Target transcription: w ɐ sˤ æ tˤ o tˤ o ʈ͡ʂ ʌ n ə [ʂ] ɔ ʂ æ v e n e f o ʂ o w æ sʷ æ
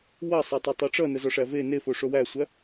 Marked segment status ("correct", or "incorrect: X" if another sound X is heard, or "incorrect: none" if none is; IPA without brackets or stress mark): incorrect: z